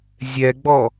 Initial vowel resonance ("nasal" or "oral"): oral